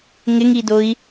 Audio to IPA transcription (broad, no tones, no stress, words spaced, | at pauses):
ŋɪŋidoi̯